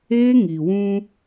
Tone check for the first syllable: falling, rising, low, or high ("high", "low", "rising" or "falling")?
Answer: high